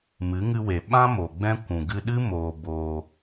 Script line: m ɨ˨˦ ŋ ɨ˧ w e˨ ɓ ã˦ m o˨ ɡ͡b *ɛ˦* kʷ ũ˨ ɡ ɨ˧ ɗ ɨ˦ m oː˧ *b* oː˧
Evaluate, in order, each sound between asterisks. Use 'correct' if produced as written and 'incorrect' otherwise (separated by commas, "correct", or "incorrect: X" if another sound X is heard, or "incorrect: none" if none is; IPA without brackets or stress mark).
incorrect: ɛ̃˦, correct